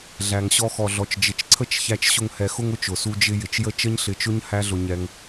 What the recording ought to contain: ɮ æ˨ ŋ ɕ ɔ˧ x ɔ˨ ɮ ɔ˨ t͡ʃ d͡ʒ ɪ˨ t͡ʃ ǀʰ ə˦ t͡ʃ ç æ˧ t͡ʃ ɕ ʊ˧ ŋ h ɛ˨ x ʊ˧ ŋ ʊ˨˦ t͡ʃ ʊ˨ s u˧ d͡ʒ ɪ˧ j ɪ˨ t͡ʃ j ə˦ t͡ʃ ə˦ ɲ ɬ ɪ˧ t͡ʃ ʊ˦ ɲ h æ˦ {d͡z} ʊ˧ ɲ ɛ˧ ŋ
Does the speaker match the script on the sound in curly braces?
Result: no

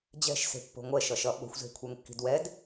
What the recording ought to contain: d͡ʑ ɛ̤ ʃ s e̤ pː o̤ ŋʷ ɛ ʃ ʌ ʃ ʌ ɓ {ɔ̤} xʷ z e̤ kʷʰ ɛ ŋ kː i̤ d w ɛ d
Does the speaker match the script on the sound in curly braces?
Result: no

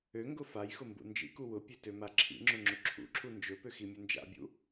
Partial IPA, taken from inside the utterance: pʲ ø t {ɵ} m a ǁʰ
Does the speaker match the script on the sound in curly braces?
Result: no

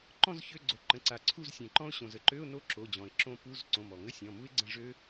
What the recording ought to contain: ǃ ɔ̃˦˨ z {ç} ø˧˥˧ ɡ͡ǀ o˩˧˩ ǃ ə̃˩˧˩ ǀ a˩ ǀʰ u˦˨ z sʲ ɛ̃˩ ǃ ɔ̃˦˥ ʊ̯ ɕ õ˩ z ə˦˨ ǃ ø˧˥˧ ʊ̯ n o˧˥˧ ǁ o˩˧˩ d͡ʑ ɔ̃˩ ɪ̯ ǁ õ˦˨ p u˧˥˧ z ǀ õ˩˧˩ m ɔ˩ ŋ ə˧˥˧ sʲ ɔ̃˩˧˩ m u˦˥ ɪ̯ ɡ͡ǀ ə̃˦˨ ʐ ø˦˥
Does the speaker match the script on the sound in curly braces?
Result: yes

